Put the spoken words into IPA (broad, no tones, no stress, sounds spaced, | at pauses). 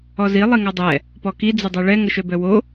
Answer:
ɔ z i lˠ i ŋ a dˤ ɛ | p ɔ k i d͡z ə dˤ œ ɭ ɛ ŋ ə ʃ œ b œ w o